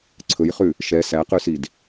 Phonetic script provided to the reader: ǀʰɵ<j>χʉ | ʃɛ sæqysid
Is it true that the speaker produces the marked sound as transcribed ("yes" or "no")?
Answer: yes